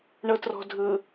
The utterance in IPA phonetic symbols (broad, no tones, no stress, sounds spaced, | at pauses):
ɳ ɤ t r ɔ̤ dʱ ɯ